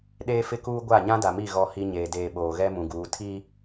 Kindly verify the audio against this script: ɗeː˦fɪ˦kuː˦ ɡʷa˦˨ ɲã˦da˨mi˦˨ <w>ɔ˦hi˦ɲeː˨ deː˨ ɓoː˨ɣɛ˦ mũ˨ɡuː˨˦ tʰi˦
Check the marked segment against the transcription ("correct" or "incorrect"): incorrect